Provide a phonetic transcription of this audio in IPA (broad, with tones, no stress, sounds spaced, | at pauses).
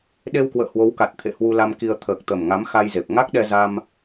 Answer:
ɗ e˧ w k w ə̰ː˧˨ h w o˨˦ w k a˨˩ t̚ t̪ʰ ḛ˧˨ h w u˧ l a˧ m k i˧ ə̯ t̪ʰ əː˨˩ k̚ t̪ ə˨˩ m ŋ a˨˦ m x a˧ j z e˨˩ p̚ ŋ a˦˥ k̚ ɗ ɛ˧ z a˧ m